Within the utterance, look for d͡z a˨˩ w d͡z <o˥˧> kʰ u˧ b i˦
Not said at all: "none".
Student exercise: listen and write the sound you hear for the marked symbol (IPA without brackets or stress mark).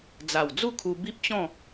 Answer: u˥˧